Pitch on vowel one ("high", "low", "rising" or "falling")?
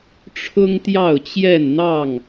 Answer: high